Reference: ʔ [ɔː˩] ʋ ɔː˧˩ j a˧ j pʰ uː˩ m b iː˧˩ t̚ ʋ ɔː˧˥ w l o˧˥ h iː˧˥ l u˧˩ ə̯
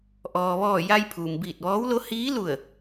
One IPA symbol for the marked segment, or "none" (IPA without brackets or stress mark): ɔː˩